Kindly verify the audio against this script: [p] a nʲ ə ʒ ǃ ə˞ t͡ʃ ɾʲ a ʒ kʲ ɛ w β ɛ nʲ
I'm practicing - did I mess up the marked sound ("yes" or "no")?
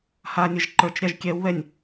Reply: yes